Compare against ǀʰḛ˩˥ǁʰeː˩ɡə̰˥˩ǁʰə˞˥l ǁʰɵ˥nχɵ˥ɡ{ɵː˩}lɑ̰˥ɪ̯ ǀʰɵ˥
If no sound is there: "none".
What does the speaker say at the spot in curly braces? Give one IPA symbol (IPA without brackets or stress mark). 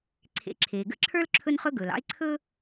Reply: ɵː˩